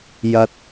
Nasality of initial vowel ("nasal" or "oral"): oral